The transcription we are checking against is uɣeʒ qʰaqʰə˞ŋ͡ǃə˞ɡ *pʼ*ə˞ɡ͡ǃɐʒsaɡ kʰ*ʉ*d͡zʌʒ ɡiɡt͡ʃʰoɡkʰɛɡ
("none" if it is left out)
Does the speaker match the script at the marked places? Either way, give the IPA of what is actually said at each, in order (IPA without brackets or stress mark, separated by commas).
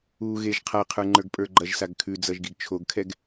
pʼ, ʉ